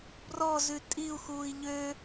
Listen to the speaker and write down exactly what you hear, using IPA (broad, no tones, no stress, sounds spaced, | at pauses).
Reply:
b r ɔ z ʉ tʼ i u̯ x uː i̯ ʎ ø